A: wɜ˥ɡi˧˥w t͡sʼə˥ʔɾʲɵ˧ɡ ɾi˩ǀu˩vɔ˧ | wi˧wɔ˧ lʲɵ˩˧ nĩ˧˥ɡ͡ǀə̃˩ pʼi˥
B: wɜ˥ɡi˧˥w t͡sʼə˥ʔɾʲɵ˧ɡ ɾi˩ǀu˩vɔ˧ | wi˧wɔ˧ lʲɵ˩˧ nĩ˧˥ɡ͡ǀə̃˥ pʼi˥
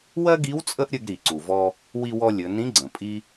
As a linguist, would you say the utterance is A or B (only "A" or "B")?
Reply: A